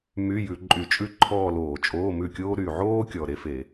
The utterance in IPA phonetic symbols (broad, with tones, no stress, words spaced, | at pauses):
my˧˥˧jʉ˧˩˧ ǃʼy˧˩˧t͡ʃʼʉ˥˧ ǃʰɔː˥˧loː˧˩˧ t͡ʃʼoː˧˥˧mʉ˥˩kʲoː˥ ɾy˨˩ʕoː˥kʲɔ˨˩ ɾe˥fe˧˩˧